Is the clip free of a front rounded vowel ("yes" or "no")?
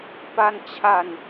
yes